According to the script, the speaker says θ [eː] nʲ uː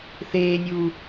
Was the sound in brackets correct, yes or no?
yes